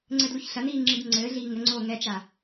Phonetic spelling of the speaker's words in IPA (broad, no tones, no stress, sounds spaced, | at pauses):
ŋ͡ǀ ɘ d l u ç ɬ ɐ n iː ŋ͡ǁ i d ŋ͡ǀ ɘː ɮ iː ŋ ɘ ŋ͡ǀ oː ŋ ɛ t͡ʃ a